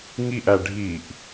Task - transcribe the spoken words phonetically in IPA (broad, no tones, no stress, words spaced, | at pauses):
ŋiʔæ ɖʱiʔ